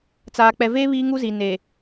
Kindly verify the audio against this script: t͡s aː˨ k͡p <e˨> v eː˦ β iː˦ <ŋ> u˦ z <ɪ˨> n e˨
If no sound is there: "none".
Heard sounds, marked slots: ɛ˨, ŋ, i˨

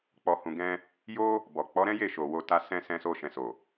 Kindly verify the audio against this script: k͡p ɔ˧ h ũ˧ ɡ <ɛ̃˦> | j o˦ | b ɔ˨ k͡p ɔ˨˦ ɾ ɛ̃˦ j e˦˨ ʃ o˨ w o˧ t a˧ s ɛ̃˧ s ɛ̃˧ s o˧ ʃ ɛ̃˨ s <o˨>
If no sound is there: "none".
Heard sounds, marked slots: ɛ̃˦, o˨

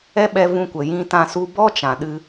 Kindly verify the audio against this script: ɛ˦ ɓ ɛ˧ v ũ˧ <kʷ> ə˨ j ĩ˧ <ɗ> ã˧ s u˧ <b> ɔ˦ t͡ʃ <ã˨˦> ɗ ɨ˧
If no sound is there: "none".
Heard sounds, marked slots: kʷ, t, b, ã˨

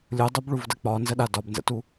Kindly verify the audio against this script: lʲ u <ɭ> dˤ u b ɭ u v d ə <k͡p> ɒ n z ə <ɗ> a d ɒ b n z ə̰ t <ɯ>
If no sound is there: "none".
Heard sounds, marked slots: none, k͡p, ɗ, u

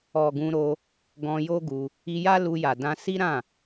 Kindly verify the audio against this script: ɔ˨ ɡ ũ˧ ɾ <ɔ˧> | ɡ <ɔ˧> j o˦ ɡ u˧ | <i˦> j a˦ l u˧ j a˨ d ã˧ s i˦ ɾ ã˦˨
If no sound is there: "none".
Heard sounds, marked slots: o˧, ɔ̃˧, i˧

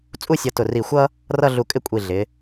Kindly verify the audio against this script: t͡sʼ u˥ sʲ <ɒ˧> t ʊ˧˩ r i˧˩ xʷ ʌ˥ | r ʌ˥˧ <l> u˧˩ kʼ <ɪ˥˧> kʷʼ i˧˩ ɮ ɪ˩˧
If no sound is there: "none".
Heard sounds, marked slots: ʌ˧, ɮ, ɪ˥˧

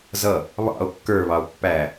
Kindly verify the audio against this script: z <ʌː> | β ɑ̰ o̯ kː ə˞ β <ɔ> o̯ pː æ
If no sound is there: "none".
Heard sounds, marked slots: ʌ, ɑ

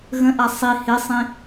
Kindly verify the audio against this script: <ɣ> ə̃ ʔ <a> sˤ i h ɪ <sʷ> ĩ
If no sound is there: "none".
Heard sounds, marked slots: ɣ, a, sˤ

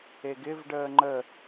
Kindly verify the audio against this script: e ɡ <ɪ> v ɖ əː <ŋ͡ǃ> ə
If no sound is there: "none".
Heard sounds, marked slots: ɪ, ŋ͡ǃ

